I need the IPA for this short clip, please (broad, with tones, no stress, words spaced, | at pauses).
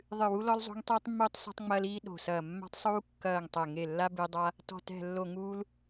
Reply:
ðˤɨ˨˩wu˧ lɔ˧lzˤo̤˧ŋ tˤiː˧tˤmːuː˧tˤ sɔ̤˧tˤŋ͡mɐː˧l iː˧ ɗo̤˨˩sɐː˨˩ mːa̤˧tˤsˤuː˧kːɐː˨˩ŋ tˤɛ˨˩ ŋe˨˩lːa˧ be˧dˤa˧ | tɔ̤˨˩tɛ̤˨˩ lːo˨˩ŋuː˧l